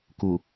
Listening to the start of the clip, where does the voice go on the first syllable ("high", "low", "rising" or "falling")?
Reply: low